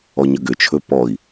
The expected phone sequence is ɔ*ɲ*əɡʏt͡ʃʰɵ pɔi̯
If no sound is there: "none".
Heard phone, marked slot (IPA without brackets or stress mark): ɲ